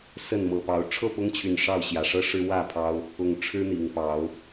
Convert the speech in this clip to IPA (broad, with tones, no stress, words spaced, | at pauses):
sə˥˨nmɤ˨˩pɑ˨˦ʊ̯ ʈ͡ʂʰɤ˥˨pʊ˦ŋt͡ɕʰy˨˩n ʂɑ˥˨ʊ̯ ɕjä˨˩ʂɤ˦ʂɻ̩˦ wä˥˨pʰɑ˦ʊ̯ | ʊ˨˩ŋ ʈ͡ʂʰɻ̩˦n̪i˨˩ŋpɑ˨˦ʊ̯